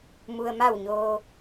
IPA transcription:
m u˩ ə̯ m a˧˩ w ɲ oː˩

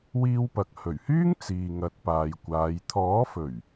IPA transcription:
w iː˧ w p ɐ˨ k̚ h ɵ˨˩ ɥ h yː˥ ŋ t͡s iː˨ ŋ ɐ˨˥ t̚ p aː˨ j kʷ aː˨˧ j t̪ʰ ɔː˨˥ f ɵ˨˩ ɥ

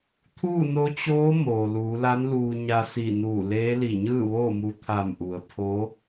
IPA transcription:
t̪ʰ uː˥˨ n o˧˥ t͡ɕ oː˧˥ m oː˩ l uː˩˧ l a˧˥ n l uː˧ ɲ a˧ s i˧˩ n uː˧˩ l eː˧˥ l i˧˩ ɲ ɯː˥˨ ʋ oː˥˨ m u˧ t̪ʰ a˧˩ m ʔ u˩ ə̯ pʰ o˧˥

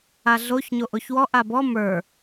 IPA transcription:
a ɮ o ç ɲ o ʔ o ç w ɔ ʔ a b ɔ m ə˞

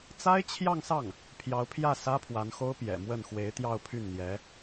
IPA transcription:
t͡s a˥ ɪ̯ t͡ɕʰ j ɑ˥˧ ŋ s ɑ˥˩ ŋ | pʰ j ɑ˧˥ ʊ̯ pʰ j ä˥˩ s ä˥ pʰ w a˧˥ n x o˥ ʊ̯ p j ɛ̰˨˩ m w ə˥˩ n x w e˧˥ ɪ̯ t̪ j ɑ˥˧ ʊ̯ pʰ y˥˩ n n̪ j ɛ˧˥

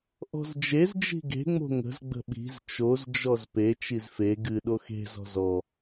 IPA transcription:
ʔ ɔ̤ z d͡ʒ e z d͡ʒ i̤ ɡ e̤ ŋ͡m o̤ ŋ ə̤ z ɡ͡b ə̤ ɓ i̤ z t͡ʃ o z d͡ʒ ɔ z p e t͡ʃ i z f e ɡ ɨ ɗ o x e̤ z ɔ̤ z ɔ

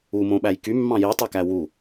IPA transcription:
u m õ ɓ æ j k y mː ɑ̃ j i tˤ ø k æ w u

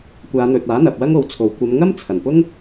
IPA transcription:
kʷ aː˨˧ n̪ ɵ˨ t̚ aː˨˥ n̪ ɐ˨ p̚ w ɐ˥ ŋ o˨ w t͡sʰ o˨˩ w kʷ ɐ˨˧ m ŋ ɐ˥ m t͡sʰ ɐ˨˩ n p ʊ˥ ŋ

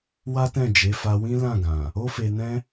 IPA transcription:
w a˦ t ɛ̃˦˨ d͡ʒ e˨˦ f a˧ w ĩ˦ l ã˦˨ ɡ ã˨ | o˦ f e˧ n ɛ̃˦

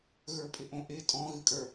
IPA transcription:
ɣ ə˞ pʼ ɪ ʔ õ ʔ ɪ tʼ ɔ̃ ɣ ɨ kʼ ə˞

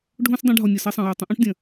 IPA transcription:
ɖʱ õ˦ s dˤ ĩ˧ ɖʱ ɔ˨ nʲ ɐ˨ s ɐ˧ sˤ ɐ̃˨ j a˨ tˤ ĩ˧ ʔ ũ˦ ʈ dʲ ɐ̃˨

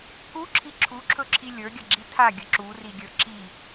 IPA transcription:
k u ǁʰ i ǁʰ u ǁʰ ɵ ǁʰ i lʲ ə˞ ɡʲ ɐ ɡ͡ǁ i tʰ a ɡʲ ə ǁ u r i ɡʲ ə˞ ǁ i

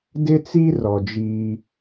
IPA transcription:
d ɪ˦ t͡s i˦ r ɔ˨ d͡ʒ iː˦

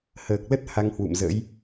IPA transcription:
h əː˨˩ k̚ l ə˦˥ t̚ h a˧ ŋ h w ṵ˧˨ m z ə̰ː˧˥ j

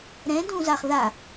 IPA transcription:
ɾ ɛ̃ d ũ z a χ ð a

